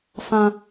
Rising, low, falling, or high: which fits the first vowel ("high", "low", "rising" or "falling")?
high